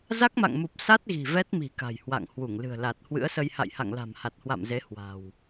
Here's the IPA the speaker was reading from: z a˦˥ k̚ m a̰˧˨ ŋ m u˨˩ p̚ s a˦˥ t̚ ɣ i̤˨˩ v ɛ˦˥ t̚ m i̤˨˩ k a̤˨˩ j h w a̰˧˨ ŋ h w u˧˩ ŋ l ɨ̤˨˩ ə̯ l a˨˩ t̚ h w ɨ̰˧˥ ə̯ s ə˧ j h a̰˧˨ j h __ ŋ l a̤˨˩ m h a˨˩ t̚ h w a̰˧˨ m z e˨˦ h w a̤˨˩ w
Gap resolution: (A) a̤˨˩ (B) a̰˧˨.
B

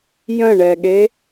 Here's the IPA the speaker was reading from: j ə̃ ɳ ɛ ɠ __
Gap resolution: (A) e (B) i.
A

